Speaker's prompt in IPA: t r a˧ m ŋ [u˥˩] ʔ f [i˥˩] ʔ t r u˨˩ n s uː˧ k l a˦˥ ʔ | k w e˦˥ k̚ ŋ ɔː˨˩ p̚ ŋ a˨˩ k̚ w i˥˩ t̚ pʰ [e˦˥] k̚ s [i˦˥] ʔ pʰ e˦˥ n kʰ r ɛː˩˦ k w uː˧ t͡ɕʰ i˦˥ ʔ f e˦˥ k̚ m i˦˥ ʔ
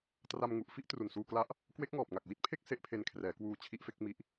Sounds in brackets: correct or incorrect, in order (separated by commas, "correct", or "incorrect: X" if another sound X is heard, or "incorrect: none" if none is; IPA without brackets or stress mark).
incorrect: u˨˩, correct, incorrect: e˥˩, incorrect: e˦˥